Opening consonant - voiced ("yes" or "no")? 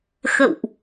no